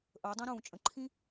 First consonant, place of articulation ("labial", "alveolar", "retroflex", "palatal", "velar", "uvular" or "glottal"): glottal